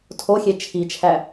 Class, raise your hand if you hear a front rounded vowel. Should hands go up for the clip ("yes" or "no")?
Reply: no